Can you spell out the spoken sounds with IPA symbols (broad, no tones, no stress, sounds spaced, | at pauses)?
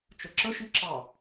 t͡ʃ ə ǁ ə ʃ i ǁ ɑ